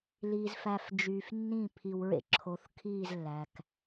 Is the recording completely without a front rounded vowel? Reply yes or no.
no